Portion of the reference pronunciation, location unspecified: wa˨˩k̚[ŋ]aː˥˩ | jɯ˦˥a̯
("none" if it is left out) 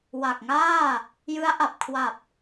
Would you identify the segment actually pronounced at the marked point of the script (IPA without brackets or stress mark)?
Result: ŋ